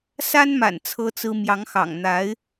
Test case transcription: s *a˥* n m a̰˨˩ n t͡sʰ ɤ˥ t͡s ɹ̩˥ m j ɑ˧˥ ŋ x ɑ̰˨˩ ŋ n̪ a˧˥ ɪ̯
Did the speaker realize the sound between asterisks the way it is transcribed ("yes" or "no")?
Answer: yes